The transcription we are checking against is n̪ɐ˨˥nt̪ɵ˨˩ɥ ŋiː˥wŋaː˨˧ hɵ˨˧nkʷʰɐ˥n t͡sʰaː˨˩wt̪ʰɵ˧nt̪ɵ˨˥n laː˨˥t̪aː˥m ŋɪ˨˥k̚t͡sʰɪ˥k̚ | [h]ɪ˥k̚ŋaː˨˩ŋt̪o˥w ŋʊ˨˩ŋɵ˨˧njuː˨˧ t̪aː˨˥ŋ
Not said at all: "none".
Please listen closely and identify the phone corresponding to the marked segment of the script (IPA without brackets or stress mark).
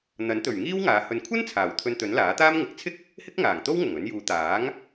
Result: h